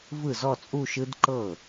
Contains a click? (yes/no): yes